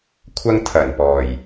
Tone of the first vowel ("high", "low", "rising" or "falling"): high